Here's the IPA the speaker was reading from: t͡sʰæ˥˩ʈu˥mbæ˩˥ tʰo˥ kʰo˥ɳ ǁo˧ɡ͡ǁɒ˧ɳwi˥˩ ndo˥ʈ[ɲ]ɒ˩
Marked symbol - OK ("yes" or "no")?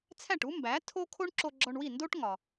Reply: no